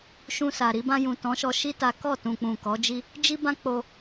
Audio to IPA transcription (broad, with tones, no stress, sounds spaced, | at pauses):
ʃ ũ˧ s a˨ ɾ i˧ b ã˧ j ũ˨ t ɔ̃˨˦ ʃ ɔ˧ ʃ i˦ t a˦ k ɔ˦˨ t ũ˨ k͡p ũ˨ k ɔ˨˦ d͡ʒ i˦ | d͡ʒ i˦ b ã˦ k͡p o˧